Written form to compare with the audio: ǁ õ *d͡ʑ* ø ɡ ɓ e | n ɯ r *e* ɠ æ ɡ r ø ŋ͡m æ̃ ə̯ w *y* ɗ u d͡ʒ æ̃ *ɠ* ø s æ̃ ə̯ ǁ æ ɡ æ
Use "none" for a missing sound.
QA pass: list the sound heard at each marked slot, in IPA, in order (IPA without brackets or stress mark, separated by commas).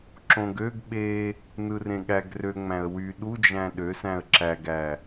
ɡ, ẽ, y, ɗ